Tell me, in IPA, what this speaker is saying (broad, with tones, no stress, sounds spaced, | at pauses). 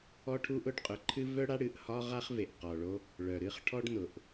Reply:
ɔ˥ ʈʰ u˥ ʔ ʊ˥ ɖ qʼ ʊ˩ ǃʰ ɨ˥ v œ˥ ɽ a˥ ɽ ɨ˩ ʔ h ɒ˥ ʁ a˥ χ v e˩ ʔ q ɔ˩ ɭ o˥ | ɭ œ˩ ɾ ɨ˥ χ ʈʰ ɔ˥ ɖ n ʊ˩ ʔ